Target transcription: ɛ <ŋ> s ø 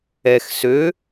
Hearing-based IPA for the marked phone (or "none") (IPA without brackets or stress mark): x